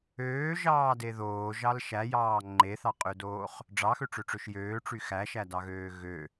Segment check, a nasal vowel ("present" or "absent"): absent